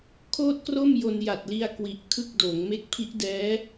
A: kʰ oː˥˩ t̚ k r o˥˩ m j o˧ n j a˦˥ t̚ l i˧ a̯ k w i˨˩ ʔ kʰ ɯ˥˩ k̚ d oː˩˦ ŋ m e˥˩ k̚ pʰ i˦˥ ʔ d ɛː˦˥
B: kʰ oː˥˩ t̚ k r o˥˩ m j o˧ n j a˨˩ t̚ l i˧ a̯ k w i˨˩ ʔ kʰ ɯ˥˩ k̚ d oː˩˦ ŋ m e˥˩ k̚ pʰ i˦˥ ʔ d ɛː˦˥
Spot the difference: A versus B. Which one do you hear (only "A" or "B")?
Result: B